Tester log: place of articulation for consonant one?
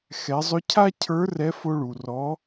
velar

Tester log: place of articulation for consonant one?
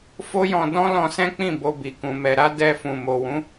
labial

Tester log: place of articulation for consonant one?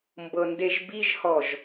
labial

